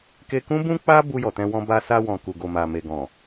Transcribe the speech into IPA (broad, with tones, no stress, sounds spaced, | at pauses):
k e˧ k ũ˦ b ũ˦ k͡p a˦ b u˧ j ɔ˨ t ɛ̃˧ w ɔ̃˧ b a˧ s a˧ w ɔ̃˨ k u˨ ɡ o˨ m a˨ m e˨ ɡ ɔ̃˨